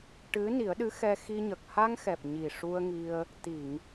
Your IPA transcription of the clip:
ʈ ɨ˧˥ n i˨˩˦ ə̯ ɗ ɨ˧˥ x ɛ˧ x i˧ ɲ ə˨˩ k̚ h a˧ ŋ x ɛ˨˩ p̚ ɲ i˨˩ ʂ u˧ ə̯ ŋ i˧ ə̯ | t̪ i˨˩˨ ŋ

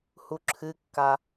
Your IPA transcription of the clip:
h u ǁʰ ɨ kː a

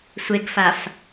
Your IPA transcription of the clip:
sʷ e ɡ f a f

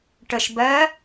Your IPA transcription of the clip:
ʈ ə ʃ b ɜ

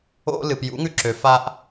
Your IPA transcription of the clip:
o̰˧ l ɨ˨ p j ṵ˨˦ ŋ ʉ˧ ǁ ø˨ f a˧ ʔ

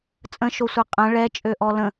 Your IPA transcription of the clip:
t͡sʼ ə̃ ʃ o sʷ ɛ qʼ ə̃ ɭ ɛ t͡ʃʼ ø ʔ ɔ l ə̃

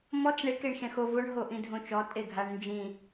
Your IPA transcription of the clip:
m ɔ t͡s ɳ e k e ɳ ʃ ɛ̃ x o v o ɳ ɦ o ʔ ĩ dʱ õ t͡ʃ ɔ tʼ e ɡʱ a ɳ n d͡ʒ ĩ

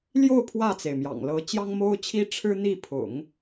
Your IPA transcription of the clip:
l j o˥˧ ʊ̯ pʰ w ä˥˩ t͡s e˩ ɪ̯ m j ɑ̰˨˩ ŋ l ɤ˧˥ t͡ɕ j ɑ˥ ŋ m o˥ ʊ̯ t͡ɕʰ i˥ ʈ͡ʂʰ ɻ̩˥ n̪ i˥˩ pʰ ʊ̰˨˩˦ ŋ

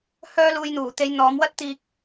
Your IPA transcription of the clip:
h œː˧ l uː˨ j n̪ uː˨˩ t̪ e˨˧ j n̪ ɔː˨˧ m w ɐ˥ t̚ t̪ iː˧ k̚

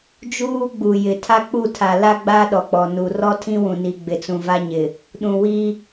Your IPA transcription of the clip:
d͡ʒ uː˦ ɡ͡b u˨ j ɪ˨ tʰ a˦ k͡p u˦˨ tʰ a˨ l a˦ ɡ͡b a˦ ɗ ɔ˨ k͡p ɔ˨ n u˨ r ɔ˦ tʰ ĩ˦ w ũ˨ n i˨ ɡ͡b ɪ˨ t͡s ũ˨ v a˦ ɲ ɪ˨ | ɗ ũ˨ w i˦

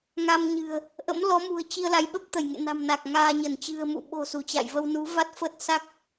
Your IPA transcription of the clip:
ŋ a˧ m ɲ ɨ̤˨˩ ə̯ | ʔ ə̰˧˥ m l ɔ˨˦ m ṳ˨˩ ə̯ t͡ɕ i˧ ə̯ l a˨˦ j ɓ ə˦˥ p̚ t̪ ə˧˩ j ŋ ḛ˧˨ n a̤˨˩ m n a˨˩ k̚ ŋ aː˧ ɲ ə˧˩ n t͡ɕ ɨ̤˨˩ ə̯ m ṵ˧˨ ɓ o̤˨˩ s u˧˩ t͡ɕ a̰˧˨ j v ə˧ w n u˨˦ v a˦˥ t̚ f ə˦˥ t̚ s a˦˥ k̚

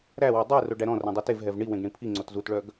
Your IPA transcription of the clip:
ɾ æ w o dˤ ɵ ɪ̯ r o ɖ æ ɾ ɔ̃ r ɛ̃ dˤ i t e v ɦ ɛ v ɳ i w ẽ ɡ ɳ ĩ pʰ i ŋ͡ǀ o t z u t ɭ œ ɡ

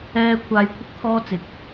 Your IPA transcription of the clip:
ɛː˥ kʷʰ aː˧ j kʷʰ ɪ˥ k̚ t̪ʰ ɔː˥ t͡s ɪ˨˥ k̚

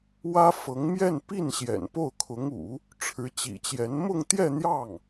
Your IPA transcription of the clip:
w ä˥ f ɤ˧˥ ŋ m j ɛ˥˧ n p i˥˩ n ɕ j ɛ̰˨˩ n p o˥˩ ʊ̯ kʰ ʊ˧˥ ŋ ṵ˨˩˦ | ʈ͡ʂʰ ɻ̩˧˥ t͡ɕ ḭ˨˩ t͡ɕ j ɛ˧˥ n m ʊ˥˧ ŋ t̪ j ɛ˥˧ n̪ j ɑ˥˩ ŋ

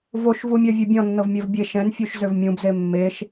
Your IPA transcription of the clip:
v o ʃ v u mʲ ɜ vʲ ø bʲ ɔ̃ nː ɤ v mʲ ɜ v bʲ e ʃ ɛ̃ n fʲ u ʃ z ø v mʲ ũ b z e mː e ʃ

